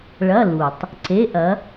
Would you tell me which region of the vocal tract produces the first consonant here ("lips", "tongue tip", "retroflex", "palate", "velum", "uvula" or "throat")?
retroflex